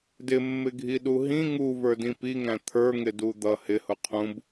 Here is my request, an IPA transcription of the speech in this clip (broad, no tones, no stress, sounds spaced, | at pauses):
d ɪ mː ɪ ɡʱ i ɗ u ɦ ĩ ŋ u v ə˞ d ĩ p i ŋ æ̃ t̪ʰ ə˞ ŋ ɪ d u d̪ ʌ h ɪ h ʊ qʰ ũ b